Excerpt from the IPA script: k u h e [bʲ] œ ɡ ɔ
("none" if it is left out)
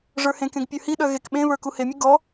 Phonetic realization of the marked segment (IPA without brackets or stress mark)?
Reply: mʲ